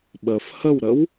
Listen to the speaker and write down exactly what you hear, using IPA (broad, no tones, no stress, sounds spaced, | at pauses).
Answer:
ɓ ə f h ə w ɾ ə w